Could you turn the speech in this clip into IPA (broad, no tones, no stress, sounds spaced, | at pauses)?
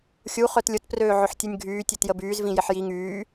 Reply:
xʲ u χ œ t lʲ ʊ t p r øː ʕ ʊ ħ tʲ u nʲ ɡʱ yː tʲ e t j ə b yː z v ĩ j ɪ ħ j i ŋ yː